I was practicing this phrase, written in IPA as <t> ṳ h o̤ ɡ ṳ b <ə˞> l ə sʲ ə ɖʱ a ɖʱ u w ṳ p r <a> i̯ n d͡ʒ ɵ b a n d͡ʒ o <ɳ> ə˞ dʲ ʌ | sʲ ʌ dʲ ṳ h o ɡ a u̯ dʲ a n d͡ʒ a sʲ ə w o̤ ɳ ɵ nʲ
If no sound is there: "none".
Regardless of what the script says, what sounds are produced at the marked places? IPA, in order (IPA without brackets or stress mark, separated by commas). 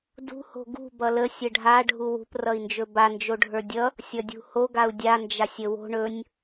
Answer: d, ʌ, ʌ, ɖʱ